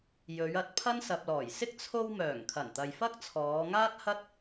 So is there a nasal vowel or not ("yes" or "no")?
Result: no